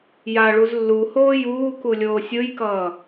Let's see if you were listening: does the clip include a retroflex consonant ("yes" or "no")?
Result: yes